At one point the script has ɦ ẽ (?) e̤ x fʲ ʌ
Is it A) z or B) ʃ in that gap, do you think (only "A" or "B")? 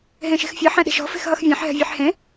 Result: B